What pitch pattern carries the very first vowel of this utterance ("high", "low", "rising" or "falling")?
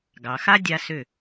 low